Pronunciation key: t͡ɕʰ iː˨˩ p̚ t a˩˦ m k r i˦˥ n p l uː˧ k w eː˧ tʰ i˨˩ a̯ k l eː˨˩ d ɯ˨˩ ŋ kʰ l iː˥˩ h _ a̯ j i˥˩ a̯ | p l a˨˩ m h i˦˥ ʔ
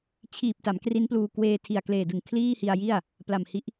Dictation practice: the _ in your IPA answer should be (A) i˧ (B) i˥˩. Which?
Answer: A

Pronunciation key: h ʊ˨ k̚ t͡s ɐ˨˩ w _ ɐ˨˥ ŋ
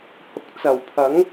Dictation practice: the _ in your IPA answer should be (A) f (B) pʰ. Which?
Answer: B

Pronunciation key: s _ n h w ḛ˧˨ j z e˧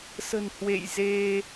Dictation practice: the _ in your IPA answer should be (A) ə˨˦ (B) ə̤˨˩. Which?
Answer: B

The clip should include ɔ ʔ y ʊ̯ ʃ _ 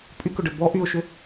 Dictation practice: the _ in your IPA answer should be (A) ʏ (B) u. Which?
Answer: A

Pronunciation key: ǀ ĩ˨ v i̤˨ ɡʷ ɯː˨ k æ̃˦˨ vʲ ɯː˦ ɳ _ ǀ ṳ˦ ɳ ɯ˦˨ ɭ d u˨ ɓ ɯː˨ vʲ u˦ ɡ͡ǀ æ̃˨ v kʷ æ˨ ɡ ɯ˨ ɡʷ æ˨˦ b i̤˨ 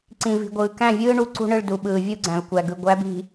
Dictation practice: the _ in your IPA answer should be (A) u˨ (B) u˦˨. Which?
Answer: B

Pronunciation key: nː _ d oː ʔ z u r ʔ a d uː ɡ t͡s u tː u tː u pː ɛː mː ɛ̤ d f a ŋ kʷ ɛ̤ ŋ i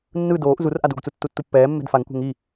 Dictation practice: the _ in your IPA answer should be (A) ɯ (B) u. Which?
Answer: A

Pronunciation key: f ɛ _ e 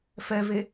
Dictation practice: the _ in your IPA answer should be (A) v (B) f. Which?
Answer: A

